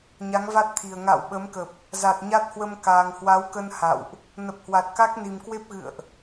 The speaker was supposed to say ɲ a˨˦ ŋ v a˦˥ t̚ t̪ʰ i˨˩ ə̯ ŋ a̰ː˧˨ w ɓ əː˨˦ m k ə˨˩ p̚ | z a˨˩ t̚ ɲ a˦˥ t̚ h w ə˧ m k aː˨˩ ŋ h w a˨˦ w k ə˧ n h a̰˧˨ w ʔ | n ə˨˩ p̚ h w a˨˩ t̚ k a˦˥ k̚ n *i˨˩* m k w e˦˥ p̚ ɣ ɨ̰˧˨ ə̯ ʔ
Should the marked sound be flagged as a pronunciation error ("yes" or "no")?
no